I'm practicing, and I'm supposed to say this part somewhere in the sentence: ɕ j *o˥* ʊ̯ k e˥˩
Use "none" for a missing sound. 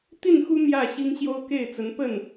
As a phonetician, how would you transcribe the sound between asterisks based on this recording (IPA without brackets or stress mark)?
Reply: o˥